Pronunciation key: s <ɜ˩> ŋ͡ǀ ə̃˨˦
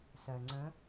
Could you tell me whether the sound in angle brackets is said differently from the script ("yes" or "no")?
no